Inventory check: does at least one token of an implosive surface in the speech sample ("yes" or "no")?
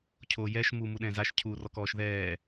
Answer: yes